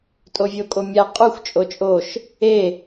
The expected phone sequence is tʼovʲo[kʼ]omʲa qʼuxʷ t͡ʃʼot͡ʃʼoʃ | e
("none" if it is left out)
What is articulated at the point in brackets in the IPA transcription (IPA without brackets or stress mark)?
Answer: kʼ